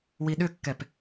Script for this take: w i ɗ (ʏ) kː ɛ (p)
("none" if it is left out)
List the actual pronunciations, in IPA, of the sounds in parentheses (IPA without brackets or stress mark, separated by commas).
ʏ, p